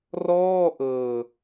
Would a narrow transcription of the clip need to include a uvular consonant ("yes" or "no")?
no